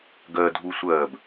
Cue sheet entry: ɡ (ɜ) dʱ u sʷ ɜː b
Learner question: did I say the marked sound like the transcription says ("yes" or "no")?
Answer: yes